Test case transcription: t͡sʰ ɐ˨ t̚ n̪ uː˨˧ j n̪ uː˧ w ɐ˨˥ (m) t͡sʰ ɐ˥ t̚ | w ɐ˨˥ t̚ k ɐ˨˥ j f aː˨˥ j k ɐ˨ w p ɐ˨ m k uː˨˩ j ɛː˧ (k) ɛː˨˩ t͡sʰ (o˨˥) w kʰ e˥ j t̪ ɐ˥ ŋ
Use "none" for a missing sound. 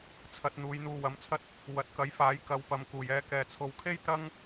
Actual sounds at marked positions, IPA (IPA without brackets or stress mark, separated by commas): m, k, o˨